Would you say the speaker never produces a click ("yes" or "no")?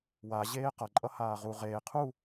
no